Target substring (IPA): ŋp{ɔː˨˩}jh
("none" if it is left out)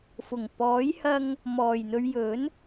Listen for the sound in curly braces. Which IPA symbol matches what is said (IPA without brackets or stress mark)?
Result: ɔː˨˥